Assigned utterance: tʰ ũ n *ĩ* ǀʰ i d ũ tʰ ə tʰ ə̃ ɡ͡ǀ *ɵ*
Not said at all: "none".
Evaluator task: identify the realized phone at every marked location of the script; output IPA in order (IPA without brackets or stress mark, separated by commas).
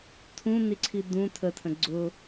i, ʊ